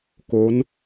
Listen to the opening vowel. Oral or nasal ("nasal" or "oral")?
oral